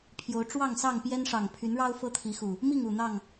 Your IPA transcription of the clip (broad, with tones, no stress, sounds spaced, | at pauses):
pʰ j o˨˦ ʊ̯ ʈ͡ʂ w ɑ˥˨ ŋ s ɑ˥˨ ŋ p j ɛ˦ n ʂ ɑ˨˩ ŋ pʰ y˨˦ n ɻ ɑ˦ ʊ̯ f ɤ˦ t̪ʰ i˨˦ x u˨˩ | m i˥˨ ŋ u˨˩ n̪ ɑ˥˨ ŋ